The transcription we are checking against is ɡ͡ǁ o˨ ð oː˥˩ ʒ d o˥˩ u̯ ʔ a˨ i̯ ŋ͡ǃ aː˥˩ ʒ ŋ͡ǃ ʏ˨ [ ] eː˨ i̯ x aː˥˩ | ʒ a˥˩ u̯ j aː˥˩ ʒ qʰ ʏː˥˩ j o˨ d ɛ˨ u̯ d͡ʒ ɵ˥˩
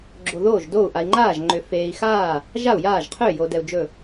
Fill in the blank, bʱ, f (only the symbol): f